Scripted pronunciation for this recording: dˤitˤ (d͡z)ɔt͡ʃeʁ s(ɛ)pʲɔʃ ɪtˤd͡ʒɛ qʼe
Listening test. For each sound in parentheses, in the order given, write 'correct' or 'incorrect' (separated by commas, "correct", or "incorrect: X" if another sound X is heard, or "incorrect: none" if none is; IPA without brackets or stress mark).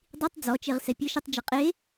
correct, correct